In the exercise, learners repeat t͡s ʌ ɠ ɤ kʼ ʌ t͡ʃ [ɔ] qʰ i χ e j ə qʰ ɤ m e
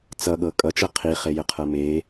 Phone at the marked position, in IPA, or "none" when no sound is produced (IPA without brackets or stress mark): ɤ